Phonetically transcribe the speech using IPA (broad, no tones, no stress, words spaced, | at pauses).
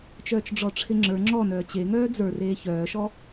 t͡ʃœːt͡ʃɖ͡ʐɔʈ͡ʂʰɪŋ͡ǁə˞ ŋ͡ǁɔ nœːt͡ɕe ŋœːd͡zə˞ reːçœːʃɔ